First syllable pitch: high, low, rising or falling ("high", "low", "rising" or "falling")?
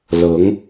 rising